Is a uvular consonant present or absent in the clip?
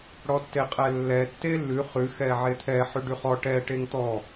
present